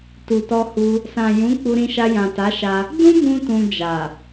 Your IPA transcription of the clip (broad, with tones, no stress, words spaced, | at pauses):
tu˨tɔ˧hu˧ | sã˨jũ˨˦ k͡pu˧ɾĩ˧ʃa˧ jã˨ta˨˦ʃa˧ | dũ˦bũ˧ tũ˧d͡ʒa˨